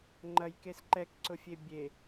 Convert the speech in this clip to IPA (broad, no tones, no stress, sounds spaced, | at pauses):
ŋ͡ǃ ɐ j k e s ǃ ɛ k ǀ ʊ fʲ e bʲ e